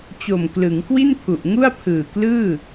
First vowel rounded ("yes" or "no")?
yes